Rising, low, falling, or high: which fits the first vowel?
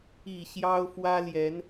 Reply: low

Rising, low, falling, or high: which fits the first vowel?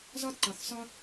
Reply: high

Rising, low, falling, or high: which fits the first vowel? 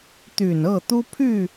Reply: low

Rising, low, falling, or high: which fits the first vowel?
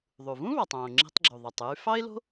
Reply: low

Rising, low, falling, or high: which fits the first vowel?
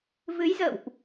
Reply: rising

